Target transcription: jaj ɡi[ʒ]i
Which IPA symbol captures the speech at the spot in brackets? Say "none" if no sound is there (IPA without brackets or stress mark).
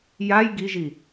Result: ʒ